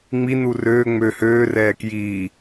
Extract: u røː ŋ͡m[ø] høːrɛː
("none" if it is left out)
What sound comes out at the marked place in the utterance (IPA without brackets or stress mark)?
ø